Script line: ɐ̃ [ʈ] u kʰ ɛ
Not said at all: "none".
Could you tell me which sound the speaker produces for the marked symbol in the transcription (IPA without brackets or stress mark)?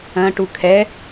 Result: ʈ